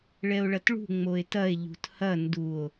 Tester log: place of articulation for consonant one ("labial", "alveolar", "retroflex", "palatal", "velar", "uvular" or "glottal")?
retroflex